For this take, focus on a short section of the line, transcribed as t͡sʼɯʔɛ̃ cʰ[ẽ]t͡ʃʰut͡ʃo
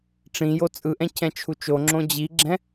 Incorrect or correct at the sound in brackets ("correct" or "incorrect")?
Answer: incorrect